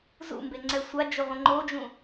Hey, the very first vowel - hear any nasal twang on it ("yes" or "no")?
no